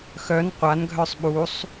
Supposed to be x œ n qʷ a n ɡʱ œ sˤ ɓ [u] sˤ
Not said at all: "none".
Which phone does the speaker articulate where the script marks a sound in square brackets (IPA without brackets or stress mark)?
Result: u